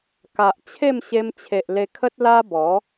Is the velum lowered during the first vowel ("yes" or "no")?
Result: no